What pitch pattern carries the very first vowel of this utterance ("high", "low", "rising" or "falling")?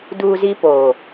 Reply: high